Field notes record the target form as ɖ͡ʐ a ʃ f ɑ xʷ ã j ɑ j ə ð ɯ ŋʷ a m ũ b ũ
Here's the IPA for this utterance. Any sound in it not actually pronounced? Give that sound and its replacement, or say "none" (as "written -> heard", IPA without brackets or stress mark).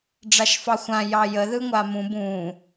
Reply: none